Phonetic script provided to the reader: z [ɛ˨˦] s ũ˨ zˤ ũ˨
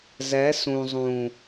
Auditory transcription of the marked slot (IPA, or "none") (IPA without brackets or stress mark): ɛ˨˦